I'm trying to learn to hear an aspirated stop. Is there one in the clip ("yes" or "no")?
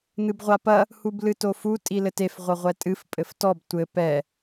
no